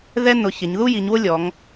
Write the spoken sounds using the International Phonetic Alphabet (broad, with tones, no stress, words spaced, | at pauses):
ðɛ˥ nʊ˩˧ çɪ˩˧ɲ ðu˥ji˩˧ɲwʊ˥lʲɔ˩˧ŋ